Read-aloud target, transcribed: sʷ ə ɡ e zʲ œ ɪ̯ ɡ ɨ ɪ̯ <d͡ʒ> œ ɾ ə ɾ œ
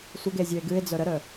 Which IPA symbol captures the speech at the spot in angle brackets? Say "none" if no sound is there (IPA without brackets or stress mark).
d͡z